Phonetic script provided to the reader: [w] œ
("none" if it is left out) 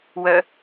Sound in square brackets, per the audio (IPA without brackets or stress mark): w